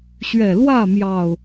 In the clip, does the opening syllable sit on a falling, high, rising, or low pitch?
low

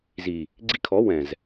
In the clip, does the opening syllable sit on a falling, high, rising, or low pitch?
low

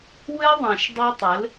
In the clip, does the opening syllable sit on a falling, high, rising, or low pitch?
high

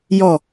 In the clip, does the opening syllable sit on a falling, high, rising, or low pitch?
low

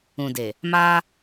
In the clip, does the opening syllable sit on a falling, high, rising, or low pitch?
low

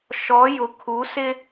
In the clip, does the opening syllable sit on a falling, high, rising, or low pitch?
rising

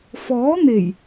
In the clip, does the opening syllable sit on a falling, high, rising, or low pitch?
rising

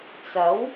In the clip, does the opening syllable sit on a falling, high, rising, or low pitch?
rising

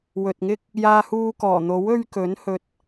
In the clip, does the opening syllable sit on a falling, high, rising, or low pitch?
low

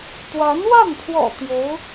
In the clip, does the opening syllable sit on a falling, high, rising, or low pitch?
rising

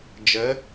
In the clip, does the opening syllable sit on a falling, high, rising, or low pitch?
rising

